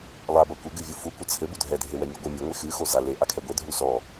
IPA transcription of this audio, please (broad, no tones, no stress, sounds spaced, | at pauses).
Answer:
lˠ a b ɐ kʷ ɘ ɡ ɨ vʲ u f u kʷ ɐ t͡sʰ ɘ b u dʱ ɛ dʱ e w ɛ mʲ u ɡʷ ɨ mʲ ɨ ŋʷ e x ɨ x o z a l e ʔ a kʰ ɛ ɡʷ e dʱ u s ɔ